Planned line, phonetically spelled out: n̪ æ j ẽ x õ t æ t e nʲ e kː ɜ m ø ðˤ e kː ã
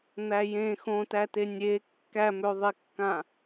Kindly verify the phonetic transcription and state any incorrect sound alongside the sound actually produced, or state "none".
ɜ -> æ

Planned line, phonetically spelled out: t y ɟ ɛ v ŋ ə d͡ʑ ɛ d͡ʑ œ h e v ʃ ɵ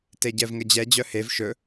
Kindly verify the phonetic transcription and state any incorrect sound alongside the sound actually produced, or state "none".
y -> e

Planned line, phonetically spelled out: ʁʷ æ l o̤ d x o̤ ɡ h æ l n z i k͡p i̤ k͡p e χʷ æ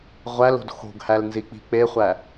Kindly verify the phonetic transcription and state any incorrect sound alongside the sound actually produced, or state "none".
none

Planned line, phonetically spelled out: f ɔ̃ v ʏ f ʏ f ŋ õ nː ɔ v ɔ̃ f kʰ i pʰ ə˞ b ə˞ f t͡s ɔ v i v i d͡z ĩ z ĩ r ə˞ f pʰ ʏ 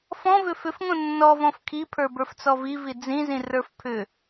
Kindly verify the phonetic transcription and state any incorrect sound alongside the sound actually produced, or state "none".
none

